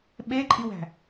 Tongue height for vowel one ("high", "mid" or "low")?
mid